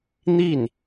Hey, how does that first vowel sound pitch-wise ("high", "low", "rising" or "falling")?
falling